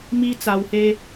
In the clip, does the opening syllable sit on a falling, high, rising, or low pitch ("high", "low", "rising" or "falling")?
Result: high